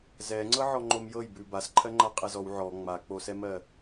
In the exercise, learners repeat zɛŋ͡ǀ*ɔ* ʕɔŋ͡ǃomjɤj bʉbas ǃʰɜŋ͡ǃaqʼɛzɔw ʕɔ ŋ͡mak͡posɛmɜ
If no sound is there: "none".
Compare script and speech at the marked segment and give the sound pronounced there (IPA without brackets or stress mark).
ɤ